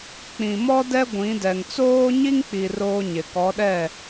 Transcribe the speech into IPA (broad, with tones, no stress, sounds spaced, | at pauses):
k͡p ĩ˨ m ɔ˦ d ɛ˦ ɡʷ ĩ˨˦ d ɛ˨ ŋ t͡s oː˦ ɲ i˦ ŋ k͡p i˨ r oː˦ ɲ ɪ˨ k ɔ˨˦ ɗ ɛ˦˨